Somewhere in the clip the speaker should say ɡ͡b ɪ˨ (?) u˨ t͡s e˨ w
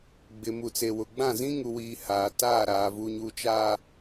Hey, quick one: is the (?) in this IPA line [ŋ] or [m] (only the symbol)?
m